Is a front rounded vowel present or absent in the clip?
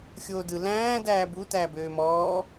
present